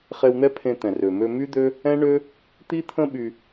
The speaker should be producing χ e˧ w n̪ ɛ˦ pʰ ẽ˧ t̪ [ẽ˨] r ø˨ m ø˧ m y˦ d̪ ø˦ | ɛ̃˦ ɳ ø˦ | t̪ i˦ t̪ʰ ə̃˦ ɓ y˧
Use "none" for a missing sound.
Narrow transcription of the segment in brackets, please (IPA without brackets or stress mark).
ɛ̃˨